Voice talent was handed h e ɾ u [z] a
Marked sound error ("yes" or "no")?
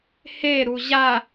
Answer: yes